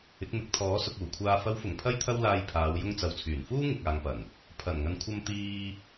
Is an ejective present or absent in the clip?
absent